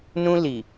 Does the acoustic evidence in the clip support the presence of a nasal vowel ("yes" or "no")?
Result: yes